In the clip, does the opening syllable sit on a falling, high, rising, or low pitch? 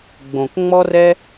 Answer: low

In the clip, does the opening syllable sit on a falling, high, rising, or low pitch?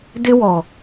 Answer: high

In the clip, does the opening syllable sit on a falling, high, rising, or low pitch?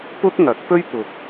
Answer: high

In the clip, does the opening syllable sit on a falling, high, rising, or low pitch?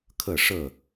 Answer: falling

